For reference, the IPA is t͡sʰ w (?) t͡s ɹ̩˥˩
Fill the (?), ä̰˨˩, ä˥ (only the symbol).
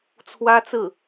ä˥